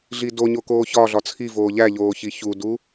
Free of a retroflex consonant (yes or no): yes